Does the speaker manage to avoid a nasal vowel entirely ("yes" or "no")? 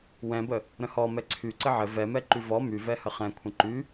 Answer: no